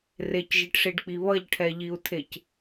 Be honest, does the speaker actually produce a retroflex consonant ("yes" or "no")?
yes